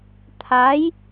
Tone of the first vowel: rising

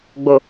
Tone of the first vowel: low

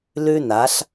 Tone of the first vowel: high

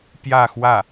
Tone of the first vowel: falling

